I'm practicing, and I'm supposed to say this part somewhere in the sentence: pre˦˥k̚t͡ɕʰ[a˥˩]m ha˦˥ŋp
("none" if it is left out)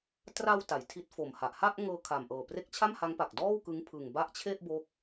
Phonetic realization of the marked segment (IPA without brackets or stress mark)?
a˥˩